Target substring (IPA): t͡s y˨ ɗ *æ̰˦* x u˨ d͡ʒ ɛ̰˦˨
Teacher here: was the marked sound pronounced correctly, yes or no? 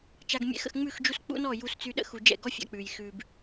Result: no